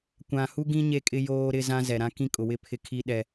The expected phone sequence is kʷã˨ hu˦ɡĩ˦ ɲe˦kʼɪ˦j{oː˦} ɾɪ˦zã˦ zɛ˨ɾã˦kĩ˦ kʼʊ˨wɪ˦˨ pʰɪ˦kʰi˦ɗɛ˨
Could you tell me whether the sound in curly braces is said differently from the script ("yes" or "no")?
no